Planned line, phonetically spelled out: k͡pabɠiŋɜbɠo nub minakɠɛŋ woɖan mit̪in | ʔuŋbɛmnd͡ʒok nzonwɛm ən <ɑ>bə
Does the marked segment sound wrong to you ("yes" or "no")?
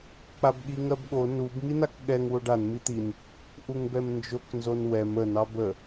no